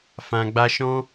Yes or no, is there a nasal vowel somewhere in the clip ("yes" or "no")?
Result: yes